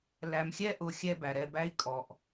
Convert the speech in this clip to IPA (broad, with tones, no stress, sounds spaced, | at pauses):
l æ˨ m xʲ ɛ˦ ʔ ʊ˨ xʲ ɛ˦ b æ˩ ɾ ɛ˨ b æ˦ i̯ kʼ ɔ˩ ʔ